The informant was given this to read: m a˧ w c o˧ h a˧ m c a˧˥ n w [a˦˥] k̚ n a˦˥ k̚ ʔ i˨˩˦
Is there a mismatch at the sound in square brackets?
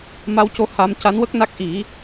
yes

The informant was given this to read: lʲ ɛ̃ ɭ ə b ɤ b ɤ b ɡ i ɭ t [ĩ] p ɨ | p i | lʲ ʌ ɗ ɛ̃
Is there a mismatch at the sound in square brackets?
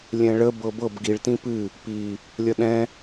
no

